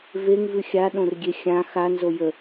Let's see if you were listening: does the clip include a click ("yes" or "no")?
no